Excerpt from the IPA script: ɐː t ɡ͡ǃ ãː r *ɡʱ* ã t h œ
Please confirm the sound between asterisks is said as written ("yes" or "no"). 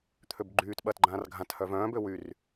yes